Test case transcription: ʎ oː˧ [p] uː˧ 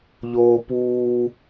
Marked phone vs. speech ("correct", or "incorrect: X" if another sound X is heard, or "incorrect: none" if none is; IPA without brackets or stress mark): correct